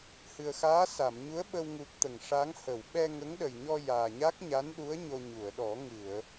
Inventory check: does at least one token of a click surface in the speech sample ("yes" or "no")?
no